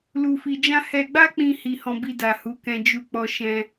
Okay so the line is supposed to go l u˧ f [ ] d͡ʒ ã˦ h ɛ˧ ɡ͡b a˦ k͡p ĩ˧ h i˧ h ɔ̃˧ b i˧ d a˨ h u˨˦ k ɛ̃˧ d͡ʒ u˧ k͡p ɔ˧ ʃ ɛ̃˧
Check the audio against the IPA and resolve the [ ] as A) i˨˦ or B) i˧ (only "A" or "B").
B